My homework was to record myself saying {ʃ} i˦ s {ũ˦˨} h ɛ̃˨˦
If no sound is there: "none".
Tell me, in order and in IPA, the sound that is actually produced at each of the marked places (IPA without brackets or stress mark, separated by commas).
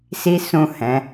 s, ũ˦˨